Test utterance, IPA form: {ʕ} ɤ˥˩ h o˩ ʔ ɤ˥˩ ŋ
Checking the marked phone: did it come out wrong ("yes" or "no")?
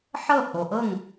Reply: yes